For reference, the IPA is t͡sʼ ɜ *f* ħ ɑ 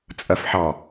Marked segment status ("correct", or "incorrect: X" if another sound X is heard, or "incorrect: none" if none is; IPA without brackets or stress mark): correct